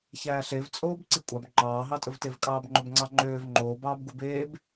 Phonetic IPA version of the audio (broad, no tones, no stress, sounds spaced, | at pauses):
ç æː ɬ e v t͡sʼ oː b ǀ i kʷʼ ɑ b ŋ͡ǃ ɑː ɦ ɑ tʼ ɵ v t e v kʼ ɑː b ŋ͡ǃ ɵ b ŋ͡ǀ ɑ ŋ͡ǃ øː v ŋ͡ǃ oː b ɑː b ɡ u b eː b